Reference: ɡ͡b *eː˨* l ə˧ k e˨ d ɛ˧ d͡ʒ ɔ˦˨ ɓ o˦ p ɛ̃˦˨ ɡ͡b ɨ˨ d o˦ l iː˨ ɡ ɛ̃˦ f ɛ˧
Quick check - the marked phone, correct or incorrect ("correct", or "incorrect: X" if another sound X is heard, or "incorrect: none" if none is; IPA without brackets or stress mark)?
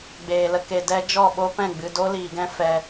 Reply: correct